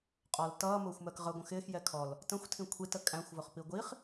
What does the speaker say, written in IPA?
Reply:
qʼ ɒ l t ʌː m ʊː xʷ m ɜ k ʁ ə ɡʷ ə̃ x ɪː x j ɛ kʰ ɔ l | t ə̃ xʷ tʰ ĩ kʷʰ i t ə kʼ æ̃ xʷ v ʊ χ p i ɡʷ i χ

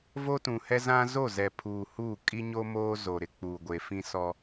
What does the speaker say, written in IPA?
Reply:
v o˦ t ũ˨ h ɛ˦ z ã˦ z o˦˨ z ɛ˨ pʰ uː˨ h u˦˨ kʼ i˦ ɲ o˦ m oː˦ z o˨ ɾ ɪ˨ k͡p uː˨ ɡʷ e˨ f ĩ˦ s ɔ˦

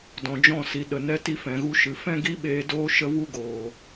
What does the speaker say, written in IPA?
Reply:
d ɔ̃˨ d͡ʒ ɔ̃˦˨ s i˨ ɗ ə˨ n ɛ˧ t i˧ f ɛ̃˨ ɣ u˧ ʃ ɨ˨ f ɛ̃˦ ɡ i˦ ɓ eː˧ d oː˦ ʃ ə˦ v u˦ ɡ oː˨

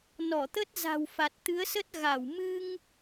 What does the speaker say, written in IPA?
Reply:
n ɔ˧˩ t̪ ə˦˥ t̚ z a̤˨˩ w f a˨˩ t̚ t̪ ɨ˨˦ ə̯ s ə˦˥ t̚ ɣ a˧˩ w m ɨ˧ ŋ

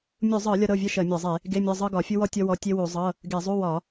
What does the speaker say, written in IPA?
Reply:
mʲ u˧˩˧ zˤ ɤ˧˩˧ lʲ ɒ˥ ɾ ɤ˧˥˧ vʲ ɜ˥ ʃ ɜ˧˩˧ mʲ ɒ˧˩˧ zˤ e˧˩˧ | ɡ e˧˥˧ mʲ ɔ˧˥˧ zˤ ɤ˥ ɡ ɒ˧˩˧ fʲ u˥ w ɔ˥ tʲ ɔ˥ w ɔ˧˥˧ tʲ e˥ w u˧˩˧ zˤ ɤ˧˥˧ | ɡ e˧˩˧ zˤ u˧˥˧ w ɒ˧˩˧

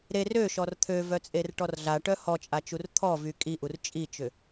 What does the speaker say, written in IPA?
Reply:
ɾ e r ø ʃ ɔ r t̪ʰ ø v œ t͡sʼ e r ʈ ɔ r ɮ a ʈ œ h ɔ t͡ʃʼ a t͡ʃ u r t̪ʰ ɔ v y kʼ i ʔ u r t͡ʃʼ i t͡ʃ ʏ

